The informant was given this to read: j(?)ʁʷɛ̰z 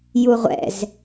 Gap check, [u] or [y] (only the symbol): u